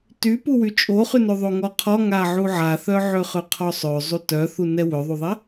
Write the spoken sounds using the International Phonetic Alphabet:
t y p u w y t͡ʃʼ o χ y n ø ðˤ o ŋ ɔ qʰ ɔ ŋ a ʕ u ʕ a θ œ ʕ ø χ ø qʰ ɔ sˤ ø zˤ u t œ θ u n ɛ w ø ðˤ u ðˤ ɛ

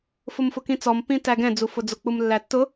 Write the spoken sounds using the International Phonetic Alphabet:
f ʊ m f ʊ k ĩ t͡s ɔ m p ĩ t æ ɡ ɛ̃ d͡z u f ʊ d͡z ʊ k͡p u m lː æ tː ʊ

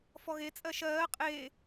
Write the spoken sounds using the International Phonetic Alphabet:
f ɔ ɣ e t͡sʼ ɜ ʃ ɜː qʼ e

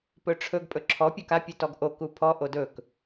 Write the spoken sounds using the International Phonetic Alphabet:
p ɵ ʈ͡ʂʰ ɵ ɡ pʼ ɵ ǁʰ ɔ pʲ o k a pʲ u t ɔ ɡ ʔ o k u pʰ ɔ ʔ o d ɵ k

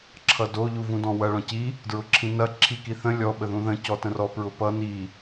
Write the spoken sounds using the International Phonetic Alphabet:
ǁʰ ʌ d o ʎ u v ũ d ɔ̃ w ɐ ɭ ɔ̃ c i | d ɹ ʊ ǁʰ ĩ n ɐ ǁʰ i k i θ ə̃ lʲ ɔ ɓ ə ð ũ ð ə̃ c ɔ t ə̃ r ɔ p ɹ ʊ p ʌ n i

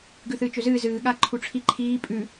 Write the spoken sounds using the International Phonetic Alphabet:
ɡ ʉ θ ɨː t͡ʃ ɵ z ɨː z ɨː ɠ a ǃʰ u ʈ͡ʂʰ i ǃʰ iː pʼ ʉ

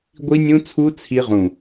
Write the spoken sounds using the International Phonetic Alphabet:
ɡʷ i˦˥ nʲ ũ˦˥ t͡sʰ u˦˥ t͡sʰ i˦˥ ʁ ũ˧˩

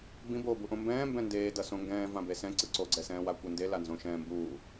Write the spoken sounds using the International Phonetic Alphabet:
b ĩ b oː b u ʔ õ m b ɛ̃ː m b ɛ̃ n d eː d ʌ s õ ŋ ɡ ɛ̃ː v ã b e s ɛ̃ ǀ ɯ ǀ o ɡ͡ǀ ɛ s ɛ̃ː w a kʷ e n d e l a n z õ ʃ ɛ̃ː m b uː

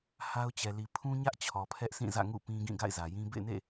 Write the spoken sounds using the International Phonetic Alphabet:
h a˦ ʊ̯ t͡ɕ ɛ˨ l i˨ pʰ ũ˦ ɲ ä˦ ʔ t͡ɕʰ ɔ˨ pʰ ɛ˦ ʔ sʰ ĩ˦˨ z ä̰˦˨ ŋ ṵ˦˨ p ĩ˦ ɡ ĩ˦˨ ɡ a̰˦˨ ɪ̯ z ä˨ j ĩ˦ b ḛ˦˨ ɪ̯ n ḛ˦˨

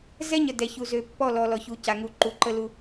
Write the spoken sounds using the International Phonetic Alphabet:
z ɛ˦ ɲ ə˨ d ɛ˨ ç u˨ z ø˨ pː ɔ˦˨ l ɔ˨ l ɔ˨ ç u˨˦ c a˨ ŋ u˨ ǃ u˨ ǃ ə˦ l u˦

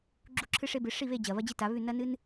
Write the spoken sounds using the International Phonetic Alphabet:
ɡ͡ǁ u˥˨ ǁʰ ɨ˥ ʂ e˥ b ɨ˨˥ ʂ i˥˨ β e˥˨ d͡ʑ ɐ˧˩ β ɐ˥ d͡ʑ i˥ t a˨˥ β ʉ˥˨ n ɐ˥ n ɨ˥ n

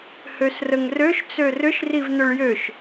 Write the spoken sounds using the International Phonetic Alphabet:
h ø s r ə ŋ r ø ʃ t͡s ø r ʏ ʃ r i v n̪ ʏ ɭ j ø ʃ

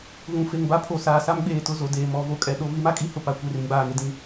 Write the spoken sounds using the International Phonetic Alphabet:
ɣ ũ˨ f e˨ ŋ b a˦ pʰ o˨ s aː˨ s a˦ m ɡ͡b eː˨ t ʊ˦˨ z o˨ d eː˨ m ɔ˨˦ v o˨ kʼ ɛ˨ ɗ o˦ v i˦ m a˦ kʼ i˦ h ʊ˨ p a˨˦ kʷ e˦˨ r ĩ˦ ɡ͡b aː˨ ŋ e˦ d ĩ˨

